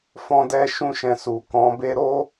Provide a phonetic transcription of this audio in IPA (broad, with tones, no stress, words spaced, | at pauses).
fɔ̃˦dɛ˦ʃũ˦ʃɛ̃˧ su˨ kɔ̃˨˦be˦ ɾo˦